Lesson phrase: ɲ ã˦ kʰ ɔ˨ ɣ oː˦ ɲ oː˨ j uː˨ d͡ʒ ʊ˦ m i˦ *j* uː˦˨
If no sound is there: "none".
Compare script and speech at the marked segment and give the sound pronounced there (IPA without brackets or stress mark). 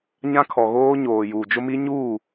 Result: ɲ